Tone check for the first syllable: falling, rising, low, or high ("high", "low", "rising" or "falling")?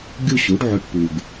falling